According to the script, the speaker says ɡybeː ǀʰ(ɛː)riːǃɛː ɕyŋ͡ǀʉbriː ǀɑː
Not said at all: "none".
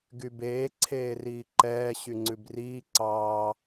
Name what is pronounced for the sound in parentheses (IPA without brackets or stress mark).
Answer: eː